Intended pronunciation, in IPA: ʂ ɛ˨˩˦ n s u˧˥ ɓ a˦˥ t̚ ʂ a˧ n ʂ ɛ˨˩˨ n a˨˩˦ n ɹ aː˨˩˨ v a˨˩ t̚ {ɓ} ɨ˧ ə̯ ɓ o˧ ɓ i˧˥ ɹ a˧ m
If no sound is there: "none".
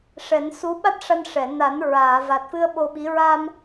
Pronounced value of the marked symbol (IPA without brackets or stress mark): f